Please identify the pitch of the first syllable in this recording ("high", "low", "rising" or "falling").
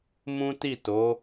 high